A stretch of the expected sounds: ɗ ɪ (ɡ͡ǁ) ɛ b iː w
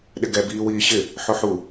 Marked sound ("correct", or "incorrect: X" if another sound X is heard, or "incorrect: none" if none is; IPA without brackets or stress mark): incorrect: ɡ